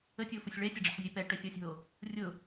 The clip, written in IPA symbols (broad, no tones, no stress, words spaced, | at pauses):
ətʲofʊsʲ ɭɛsʲɐɖ͡ʐə̰ħzʲœ pɛʈœsʲɔsʲɦo | rʲʊ